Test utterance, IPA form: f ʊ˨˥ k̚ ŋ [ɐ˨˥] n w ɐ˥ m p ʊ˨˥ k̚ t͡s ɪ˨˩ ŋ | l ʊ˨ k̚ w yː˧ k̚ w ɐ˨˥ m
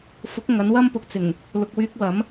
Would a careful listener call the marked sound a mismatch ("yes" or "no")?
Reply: no